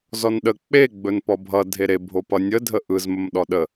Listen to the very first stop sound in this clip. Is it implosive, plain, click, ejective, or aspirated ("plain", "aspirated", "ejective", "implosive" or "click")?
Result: implosive